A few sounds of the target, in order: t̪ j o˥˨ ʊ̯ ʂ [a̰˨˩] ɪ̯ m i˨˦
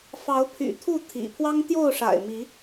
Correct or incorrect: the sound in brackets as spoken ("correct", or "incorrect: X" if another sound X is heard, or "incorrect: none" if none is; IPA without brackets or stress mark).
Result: correct